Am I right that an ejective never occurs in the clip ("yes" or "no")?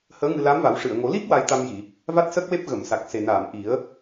yes